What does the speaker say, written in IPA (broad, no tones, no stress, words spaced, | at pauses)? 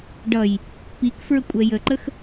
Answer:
ɖʌj | pik fɹəkʷʼɛjəǃəx